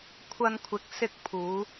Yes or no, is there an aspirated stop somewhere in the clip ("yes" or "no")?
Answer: yes